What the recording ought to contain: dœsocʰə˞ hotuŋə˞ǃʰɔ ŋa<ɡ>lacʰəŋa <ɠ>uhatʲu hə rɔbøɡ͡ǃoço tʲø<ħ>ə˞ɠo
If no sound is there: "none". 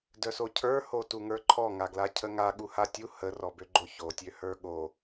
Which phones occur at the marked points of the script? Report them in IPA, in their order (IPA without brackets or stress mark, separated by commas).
ɡ, ɠ, h